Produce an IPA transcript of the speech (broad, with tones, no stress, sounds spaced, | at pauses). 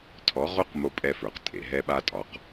tʰ ɔ˨˦ ʁ o˦ q m o˦ pʼ ɛ˦ f ə˞˨ q tʼ ḛ˨ ɦ ɛ˦ ɓ a˦ tʼ ɒ˨˦ q